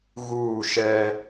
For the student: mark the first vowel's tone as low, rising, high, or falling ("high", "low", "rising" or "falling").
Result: falling